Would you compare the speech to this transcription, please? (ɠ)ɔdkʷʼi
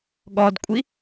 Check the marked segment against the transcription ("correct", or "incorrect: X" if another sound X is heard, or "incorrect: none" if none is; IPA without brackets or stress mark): correct